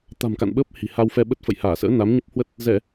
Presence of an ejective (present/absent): absent